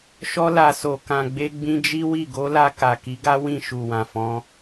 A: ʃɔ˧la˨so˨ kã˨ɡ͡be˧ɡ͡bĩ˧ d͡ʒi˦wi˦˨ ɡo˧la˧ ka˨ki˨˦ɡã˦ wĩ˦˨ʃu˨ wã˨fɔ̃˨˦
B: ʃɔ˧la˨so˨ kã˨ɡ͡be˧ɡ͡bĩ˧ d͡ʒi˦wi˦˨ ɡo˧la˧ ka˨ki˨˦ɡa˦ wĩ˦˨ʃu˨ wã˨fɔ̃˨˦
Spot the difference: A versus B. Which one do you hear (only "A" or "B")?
B